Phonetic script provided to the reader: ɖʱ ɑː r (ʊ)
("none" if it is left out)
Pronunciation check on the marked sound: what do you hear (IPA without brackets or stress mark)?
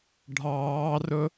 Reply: ʊ